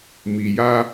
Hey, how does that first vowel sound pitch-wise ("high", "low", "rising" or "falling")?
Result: low